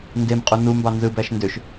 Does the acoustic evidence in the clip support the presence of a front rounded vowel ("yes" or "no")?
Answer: yes